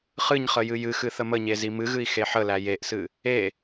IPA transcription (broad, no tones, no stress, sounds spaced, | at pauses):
χ ɨ ɲ χ ə j ɨ j ɨ x ɨ θ ə m ə ɲ e z i m ɨ ɣ ɨ i̯ x e ħ ə l æ j e ʔ s ɨ | e